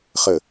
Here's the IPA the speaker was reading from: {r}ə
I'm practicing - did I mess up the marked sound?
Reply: yes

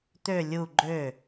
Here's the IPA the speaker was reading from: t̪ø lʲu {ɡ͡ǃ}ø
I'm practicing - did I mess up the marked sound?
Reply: no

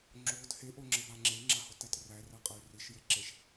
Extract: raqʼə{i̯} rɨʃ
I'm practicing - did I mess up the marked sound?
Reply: yes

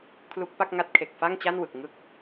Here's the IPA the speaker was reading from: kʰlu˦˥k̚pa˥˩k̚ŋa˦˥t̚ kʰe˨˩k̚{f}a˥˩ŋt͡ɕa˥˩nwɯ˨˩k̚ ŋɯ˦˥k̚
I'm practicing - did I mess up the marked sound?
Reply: no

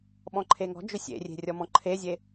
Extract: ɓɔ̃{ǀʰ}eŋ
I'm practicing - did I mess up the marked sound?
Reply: yes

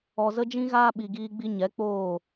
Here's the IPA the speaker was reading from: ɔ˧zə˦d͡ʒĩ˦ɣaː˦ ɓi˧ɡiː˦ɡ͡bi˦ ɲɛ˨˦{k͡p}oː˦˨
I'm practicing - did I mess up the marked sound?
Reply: no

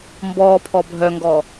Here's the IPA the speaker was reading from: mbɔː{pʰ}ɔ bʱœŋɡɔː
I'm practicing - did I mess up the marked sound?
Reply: no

